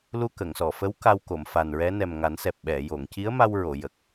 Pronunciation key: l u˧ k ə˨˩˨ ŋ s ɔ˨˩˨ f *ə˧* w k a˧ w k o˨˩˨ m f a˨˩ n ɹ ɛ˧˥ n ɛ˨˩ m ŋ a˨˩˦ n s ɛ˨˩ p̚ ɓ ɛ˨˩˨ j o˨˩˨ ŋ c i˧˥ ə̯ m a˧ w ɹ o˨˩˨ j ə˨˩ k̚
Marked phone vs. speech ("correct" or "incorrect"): incorrect